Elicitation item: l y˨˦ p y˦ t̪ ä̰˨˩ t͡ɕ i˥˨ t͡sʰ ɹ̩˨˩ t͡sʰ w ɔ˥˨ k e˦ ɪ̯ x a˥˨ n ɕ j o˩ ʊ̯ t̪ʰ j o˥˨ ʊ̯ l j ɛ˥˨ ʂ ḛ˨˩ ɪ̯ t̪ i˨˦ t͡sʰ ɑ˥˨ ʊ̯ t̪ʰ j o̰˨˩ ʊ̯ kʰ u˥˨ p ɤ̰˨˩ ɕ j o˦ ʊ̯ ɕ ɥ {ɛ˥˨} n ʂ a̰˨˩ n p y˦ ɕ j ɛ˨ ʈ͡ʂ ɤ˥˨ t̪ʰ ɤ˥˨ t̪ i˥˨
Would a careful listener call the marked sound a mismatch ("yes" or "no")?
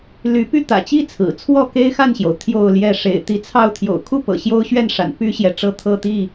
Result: no